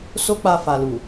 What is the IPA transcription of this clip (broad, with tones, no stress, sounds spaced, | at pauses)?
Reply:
s o˦ k͡p a˧ f a˨ l u˨